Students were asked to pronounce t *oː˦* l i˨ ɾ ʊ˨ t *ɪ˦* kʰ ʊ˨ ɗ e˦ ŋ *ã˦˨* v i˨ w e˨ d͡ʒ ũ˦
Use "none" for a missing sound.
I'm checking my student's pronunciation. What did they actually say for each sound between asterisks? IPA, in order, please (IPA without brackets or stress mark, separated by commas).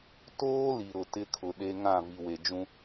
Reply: oː˦, ɪ˦, ã˦˨